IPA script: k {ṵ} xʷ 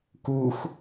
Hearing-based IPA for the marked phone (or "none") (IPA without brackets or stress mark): u